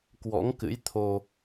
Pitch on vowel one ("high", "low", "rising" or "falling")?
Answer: rising